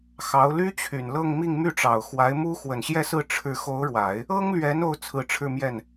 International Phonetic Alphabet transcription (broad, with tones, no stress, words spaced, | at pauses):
xɑ˧˥ʊ̯ ly˥t͡ɕʰy˨˩nlɤ˥˧ŋmi˥˧ŋ my˥˩ʈ͡ʂɑ˨˩ʊ̯ xwa˧˥ɪ̯mu˥ xwə˨˩nɕjɛ˥˧sɹ̩˥˧ ʈ͡ʂʰɻ̩˥˩ xo˧˥ʊ̯ɻwa˨˩˦ɪ̯ | ɤ˥ŋlɥɛ˧˥n o˥ʊ̯t͡sʰɹ̩˧˥ʈ͡ʂʰɻ̩˥˧mjɛ˥˩n